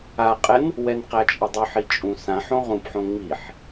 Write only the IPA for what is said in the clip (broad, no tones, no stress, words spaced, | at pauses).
aqʼɛn | wɛnqæt͡ʃʼədˤʉħ it͡ʃʼũsãħõ ʁũpħõ ŋ͡miħ